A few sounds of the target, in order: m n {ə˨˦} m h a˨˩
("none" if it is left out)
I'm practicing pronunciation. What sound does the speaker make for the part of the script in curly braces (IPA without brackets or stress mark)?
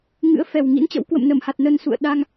ə˧˩